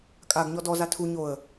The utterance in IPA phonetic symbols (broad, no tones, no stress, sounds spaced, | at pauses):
kʼ a ɡ ɲ ɔ d ɔ z a tʰ u ɲ o ə̯